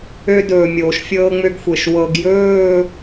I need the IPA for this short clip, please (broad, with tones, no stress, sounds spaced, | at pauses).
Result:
ø˦ d ɵː˨ mʲ oː˨ ʃ fʲ ɤː˦ ŋ͡m ø˦ ɡ xʷ e˨ ʃ w ɤ˨ ɡ j ɵː˦˨